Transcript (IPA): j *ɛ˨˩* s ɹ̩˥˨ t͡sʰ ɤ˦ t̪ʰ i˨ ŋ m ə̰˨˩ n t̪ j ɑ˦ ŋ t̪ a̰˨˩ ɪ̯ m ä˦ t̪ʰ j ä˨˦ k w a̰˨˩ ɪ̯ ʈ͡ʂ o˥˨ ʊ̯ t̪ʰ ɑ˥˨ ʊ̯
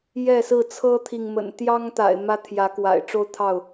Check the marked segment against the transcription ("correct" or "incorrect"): incorrect